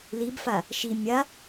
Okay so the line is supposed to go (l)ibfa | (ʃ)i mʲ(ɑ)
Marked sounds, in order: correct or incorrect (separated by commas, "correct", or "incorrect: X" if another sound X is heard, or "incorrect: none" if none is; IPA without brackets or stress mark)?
correct, correct, incorrect: a